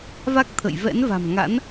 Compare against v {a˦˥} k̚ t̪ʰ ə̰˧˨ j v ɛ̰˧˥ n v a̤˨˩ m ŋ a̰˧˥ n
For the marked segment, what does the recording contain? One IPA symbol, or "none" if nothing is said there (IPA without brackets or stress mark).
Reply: a˦˥